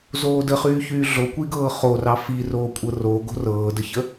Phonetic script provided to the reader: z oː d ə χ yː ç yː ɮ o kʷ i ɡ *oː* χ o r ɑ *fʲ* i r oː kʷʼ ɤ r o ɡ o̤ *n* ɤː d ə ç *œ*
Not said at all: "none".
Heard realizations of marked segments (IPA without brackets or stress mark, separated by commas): ɤː, f, r, ə